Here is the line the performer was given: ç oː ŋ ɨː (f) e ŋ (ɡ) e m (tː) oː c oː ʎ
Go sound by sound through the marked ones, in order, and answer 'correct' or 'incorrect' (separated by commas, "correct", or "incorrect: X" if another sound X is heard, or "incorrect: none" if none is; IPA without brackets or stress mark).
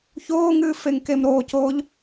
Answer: correct, incorrect: k, incorrect: ɾ